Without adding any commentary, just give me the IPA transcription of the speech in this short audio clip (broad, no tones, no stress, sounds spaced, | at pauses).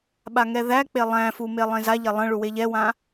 ɓ a ŋ ɛ ð æ k͡p e lˠ æ̃ f u m e lˠ ẽ z a ʎ ɛ lˠ ə̃ ɭ u w e ʎ ɛ w ã